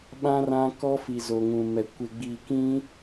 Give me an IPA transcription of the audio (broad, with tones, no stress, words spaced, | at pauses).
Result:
ɓã˦rã˦ kɔ˦fi˨ zo˨ŋũ˨mɛ˨ kʷɪ˨ɡ͡bi˨kĩ˦